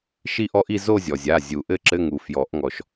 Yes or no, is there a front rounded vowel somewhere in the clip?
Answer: no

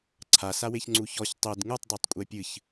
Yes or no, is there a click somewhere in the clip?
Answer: yes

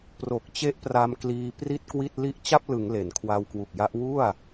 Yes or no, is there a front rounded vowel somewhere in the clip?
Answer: no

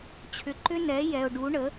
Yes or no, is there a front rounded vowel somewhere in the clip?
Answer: yes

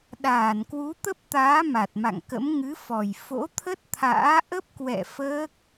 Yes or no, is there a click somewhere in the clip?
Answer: no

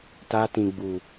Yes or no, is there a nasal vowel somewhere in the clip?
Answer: yes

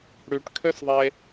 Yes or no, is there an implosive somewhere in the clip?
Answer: no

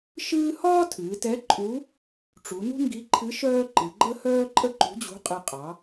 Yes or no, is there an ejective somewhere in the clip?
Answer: yes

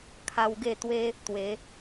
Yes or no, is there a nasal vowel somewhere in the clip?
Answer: no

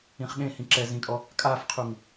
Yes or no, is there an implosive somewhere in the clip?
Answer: yes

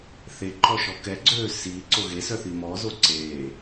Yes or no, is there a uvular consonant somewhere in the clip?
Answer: no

